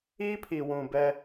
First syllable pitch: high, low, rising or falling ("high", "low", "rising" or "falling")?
high